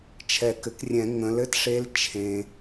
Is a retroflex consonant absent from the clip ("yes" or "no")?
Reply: no